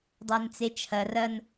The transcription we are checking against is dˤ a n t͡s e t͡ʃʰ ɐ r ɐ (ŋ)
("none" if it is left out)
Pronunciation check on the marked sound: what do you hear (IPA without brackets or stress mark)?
n